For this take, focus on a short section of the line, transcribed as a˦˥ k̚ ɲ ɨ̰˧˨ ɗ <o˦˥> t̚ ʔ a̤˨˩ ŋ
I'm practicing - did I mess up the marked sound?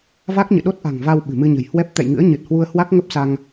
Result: no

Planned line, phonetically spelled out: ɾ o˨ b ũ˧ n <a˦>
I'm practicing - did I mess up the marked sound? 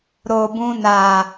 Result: yes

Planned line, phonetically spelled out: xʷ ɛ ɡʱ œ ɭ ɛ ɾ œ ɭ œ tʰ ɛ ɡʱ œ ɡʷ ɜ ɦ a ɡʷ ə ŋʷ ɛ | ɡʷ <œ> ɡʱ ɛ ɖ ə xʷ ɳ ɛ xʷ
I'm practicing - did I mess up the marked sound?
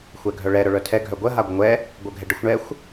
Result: no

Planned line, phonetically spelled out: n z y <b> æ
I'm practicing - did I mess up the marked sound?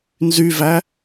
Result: yes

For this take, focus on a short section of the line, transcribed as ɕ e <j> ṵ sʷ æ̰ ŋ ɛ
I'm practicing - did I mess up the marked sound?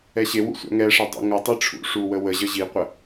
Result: yes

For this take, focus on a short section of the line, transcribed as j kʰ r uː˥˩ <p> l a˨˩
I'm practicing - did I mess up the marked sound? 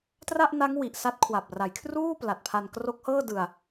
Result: no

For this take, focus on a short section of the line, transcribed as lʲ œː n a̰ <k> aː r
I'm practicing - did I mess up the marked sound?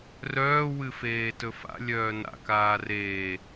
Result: no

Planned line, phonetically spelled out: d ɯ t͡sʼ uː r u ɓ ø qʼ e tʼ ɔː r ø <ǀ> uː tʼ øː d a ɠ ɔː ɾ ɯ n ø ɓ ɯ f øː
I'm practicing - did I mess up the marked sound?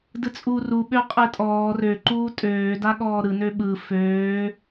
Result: yes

